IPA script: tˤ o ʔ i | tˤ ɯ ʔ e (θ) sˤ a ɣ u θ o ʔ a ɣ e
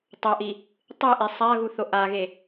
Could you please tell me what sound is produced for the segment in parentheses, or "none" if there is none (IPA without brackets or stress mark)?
none